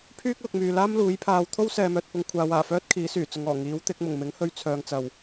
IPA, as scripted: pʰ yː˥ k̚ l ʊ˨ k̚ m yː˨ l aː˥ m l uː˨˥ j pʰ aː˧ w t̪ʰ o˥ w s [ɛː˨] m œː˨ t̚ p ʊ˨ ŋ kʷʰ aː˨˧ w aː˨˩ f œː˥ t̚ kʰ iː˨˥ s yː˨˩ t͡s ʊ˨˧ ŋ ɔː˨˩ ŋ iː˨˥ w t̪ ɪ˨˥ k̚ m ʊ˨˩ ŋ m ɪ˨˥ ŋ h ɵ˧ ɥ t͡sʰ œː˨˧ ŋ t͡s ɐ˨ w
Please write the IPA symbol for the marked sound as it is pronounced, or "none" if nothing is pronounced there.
ɛː˨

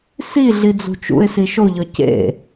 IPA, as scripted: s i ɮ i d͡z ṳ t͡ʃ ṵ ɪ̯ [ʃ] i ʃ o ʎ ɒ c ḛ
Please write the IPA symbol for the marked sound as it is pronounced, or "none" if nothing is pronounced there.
s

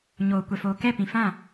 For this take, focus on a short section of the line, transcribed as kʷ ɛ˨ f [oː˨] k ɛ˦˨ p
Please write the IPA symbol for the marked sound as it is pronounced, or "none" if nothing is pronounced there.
oː˨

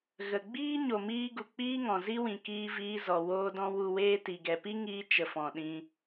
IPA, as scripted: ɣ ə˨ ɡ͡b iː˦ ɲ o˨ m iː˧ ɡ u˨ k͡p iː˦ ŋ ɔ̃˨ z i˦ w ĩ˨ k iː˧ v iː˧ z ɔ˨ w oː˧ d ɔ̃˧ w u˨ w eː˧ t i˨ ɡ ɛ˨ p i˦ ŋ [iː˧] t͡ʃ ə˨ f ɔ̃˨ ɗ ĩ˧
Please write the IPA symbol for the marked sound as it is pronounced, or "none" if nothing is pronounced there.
iː˧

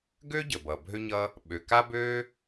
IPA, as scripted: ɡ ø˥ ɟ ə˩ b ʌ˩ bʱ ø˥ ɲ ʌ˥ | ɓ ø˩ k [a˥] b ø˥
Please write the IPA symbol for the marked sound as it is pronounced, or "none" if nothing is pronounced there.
a˥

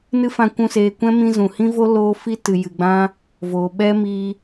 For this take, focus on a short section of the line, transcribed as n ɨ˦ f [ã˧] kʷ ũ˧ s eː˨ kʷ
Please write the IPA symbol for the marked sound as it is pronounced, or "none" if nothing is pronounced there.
ã˧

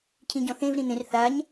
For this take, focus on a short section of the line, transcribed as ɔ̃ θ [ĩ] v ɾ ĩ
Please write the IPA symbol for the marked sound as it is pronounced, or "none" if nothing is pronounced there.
ẽ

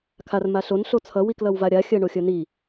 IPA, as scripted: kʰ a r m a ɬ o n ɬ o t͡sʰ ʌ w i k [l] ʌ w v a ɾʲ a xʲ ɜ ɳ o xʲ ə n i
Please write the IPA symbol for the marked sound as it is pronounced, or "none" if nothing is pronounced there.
l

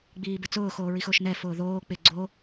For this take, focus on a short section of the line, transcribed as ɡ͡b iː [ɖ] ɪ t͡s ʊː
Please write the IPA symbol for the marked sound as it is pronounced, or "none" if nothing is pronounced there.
b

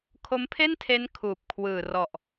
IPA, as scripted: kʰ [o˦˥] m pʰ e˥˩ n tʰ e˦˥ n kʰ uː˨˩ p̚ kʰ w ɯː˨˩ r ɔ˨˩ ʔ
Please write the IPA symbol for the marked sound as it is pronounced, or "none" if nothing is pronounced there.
o˦˥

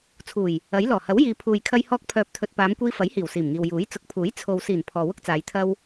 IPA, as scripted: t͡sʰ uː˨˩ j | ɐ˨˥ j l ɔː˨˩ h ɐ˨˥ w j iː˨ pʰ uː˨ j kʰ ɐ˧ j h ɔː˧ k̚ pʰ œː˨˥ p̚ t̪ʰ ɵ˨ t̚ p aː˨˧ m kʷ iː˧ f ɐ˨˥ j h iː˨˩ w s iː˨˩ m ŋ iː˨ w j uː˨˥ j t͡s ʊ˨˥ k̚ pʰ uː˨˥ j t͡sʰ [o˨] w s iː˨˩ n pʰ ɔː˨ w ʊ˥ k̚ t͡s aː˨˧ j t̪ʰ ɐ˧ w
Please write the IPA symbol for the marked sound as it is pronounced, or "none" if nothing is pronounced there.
o˨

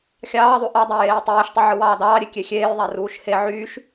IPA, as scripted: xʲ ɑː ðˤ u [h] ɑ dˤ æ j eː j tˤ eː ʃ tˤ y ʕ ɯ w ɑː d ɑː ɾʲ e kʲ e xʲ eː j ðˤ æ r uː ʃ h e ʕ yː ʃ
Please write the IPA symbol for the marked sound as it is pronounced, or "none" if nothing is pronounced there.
ʔ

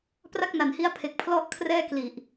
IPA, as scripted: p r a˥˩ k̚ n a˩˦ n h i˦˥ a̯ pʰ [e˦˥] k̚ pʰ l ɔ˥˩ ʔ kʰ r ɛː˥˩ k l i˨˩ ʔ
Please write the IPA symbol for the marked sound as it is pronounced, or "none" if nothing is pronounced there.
e˨˩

